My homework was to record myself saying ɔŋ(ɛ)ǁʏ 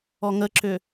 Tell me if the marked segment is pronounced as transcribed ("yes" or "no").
no